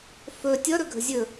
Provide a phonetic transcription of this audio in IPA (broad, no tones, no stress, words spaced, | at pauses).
fɵ tʲʌɾɵɡʱə̤ zʲɵ